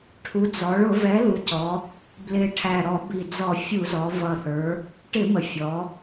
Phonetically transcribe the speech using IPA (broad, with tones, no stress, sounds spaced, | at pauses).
ʈʰ u˩˧ d͡z ɔ˩˧ ɭ ʊ˧˩˧ v ɛ˩˥ l u˩˧ c ɔ˩˧ | b l ɪ˨˩ ʈʰ æ˨˩ ɾ ɔ˧˩˧ b i˨˩ d͡z ɔ˧˩˧ fʲ u˧˩˧ z ɔ˩˧ v ʌ˨˩ θ ə˞˩˧ | ʈ ɪ˧˩˧ m ə˨˩ fʲ ɔ˩˧